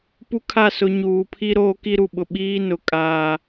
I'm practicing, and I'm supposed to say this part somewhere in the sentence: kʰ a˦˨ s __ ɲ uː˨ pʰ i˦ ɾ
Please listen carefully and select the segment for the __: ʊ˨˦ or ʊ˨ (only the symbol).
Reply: ʊ˨˦